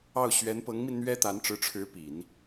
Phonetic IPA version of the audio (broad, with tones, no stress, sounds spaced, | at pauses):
ɑ˥˩ ʊ̯ ɕ ɥ ɛ˧˥ n p ɤ˧˥ ŋ m i˧ n n̪ ɥ ɛ˥ t̪ a˧˥ n ʈ͡ʂ ɻ̩˧˥ ʈ͡ʂʰ ɻ̩˧˥ p i˨˩˦ n